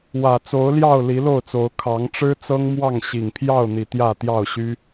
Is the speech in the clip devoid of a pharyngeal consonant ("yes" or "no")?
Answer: yes